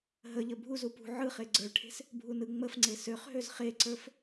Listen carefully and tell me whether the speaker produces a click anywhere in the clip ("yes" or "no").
yes